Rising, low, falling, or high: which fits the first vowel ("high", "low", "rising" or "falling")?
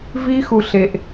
high